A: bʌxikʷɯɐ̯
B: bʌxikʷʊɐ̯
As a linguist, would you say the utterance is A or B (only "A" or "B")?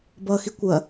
B